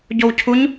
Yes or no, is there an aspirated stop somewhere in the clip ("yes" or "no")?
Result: yes